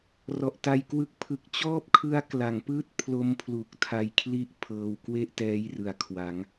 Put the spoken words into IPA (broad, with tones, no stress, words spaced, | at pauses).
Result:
rɔ˨˩ʔta˧jkwɯ˦˥k̚ pʰɯ˦˥k̚ t͡ɕɔː˥˩p̚kʰɯ˦˥a̯ kla˩˦ŋpɯː˥˩t̚ pʰlo˦˥mpʰlu˨˩k̚tʰa˧jkʰli˦˥ʔ pʰɤː˧w kwe˥˩ʔtɛː˦˥j rɯ˩˦a̯kʰwa˩˦ŋ